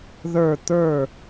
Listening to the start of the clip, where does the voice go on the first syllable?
falling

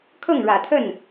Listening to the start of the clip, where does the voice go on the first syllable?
falling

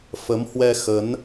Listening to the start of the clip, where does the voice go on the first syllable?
rising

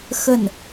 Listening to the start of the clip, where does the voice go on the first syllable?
falling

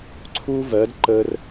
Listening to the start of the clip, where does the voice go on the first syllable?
high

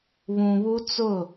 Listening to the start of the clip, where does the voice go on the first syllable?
low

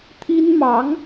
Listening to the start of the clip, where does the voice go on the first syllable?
high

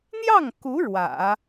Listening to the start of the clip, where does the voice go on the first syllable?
falling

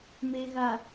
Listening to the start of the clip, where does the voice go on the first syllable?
low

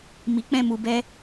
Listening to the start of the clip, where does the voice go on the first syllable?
low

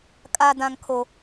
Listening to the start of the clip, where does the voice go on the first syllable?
low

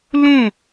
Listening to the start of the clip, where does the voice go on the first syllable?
falling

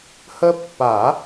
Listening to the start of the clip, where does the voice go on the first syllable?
high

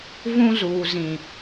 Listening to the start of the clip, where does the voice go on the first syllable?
high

